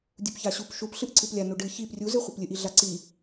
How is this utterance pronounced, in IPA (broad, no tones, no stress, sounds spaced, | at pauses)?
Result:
dʲ u p ç a ɕ u p ʃ u p ɬ ɨ ʔ ǀ ɨ p lʲ a n u ɖ ɨ ç i p rʲ u z ɨ χʷ ɨ p lʲ ɨ ʔ i ɮ a ǀ i